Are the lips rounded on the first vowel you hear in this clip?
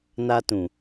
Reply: no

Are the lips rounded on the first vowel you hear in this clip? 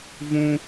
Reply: yes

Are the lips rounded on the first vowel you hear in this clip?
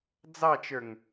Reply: no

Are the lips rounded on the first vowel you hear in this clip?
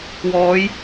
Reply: yes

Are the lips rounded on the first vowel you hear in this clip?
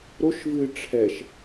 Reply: yes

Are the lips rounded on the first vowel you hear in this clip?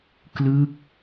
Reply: no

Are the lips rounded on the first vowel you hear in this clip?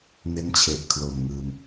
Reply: no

